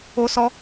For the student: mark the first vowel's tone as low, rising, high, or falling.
high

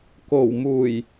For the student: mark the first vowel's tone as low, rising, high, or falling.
low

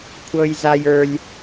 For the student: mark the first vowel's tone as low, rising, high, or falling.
high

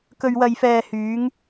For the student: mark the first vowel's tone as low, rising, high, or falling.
low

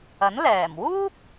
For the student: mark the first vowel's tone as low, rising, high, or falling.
rising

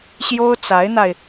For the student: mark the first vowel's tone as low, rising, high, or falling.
high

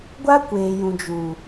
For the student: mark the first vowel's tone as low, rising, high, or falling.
high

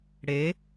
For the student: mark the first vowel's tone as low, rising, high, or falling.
rising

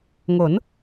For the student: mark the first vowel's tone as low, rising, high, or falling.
rising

